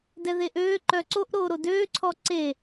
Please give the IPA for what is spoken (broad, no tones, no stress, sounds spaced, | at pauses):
d ɛ ð e ʔ øː ǃ œ ǀ o ʔ ɾ oː ɾ o d øː ǀʰ ɔ ǀ e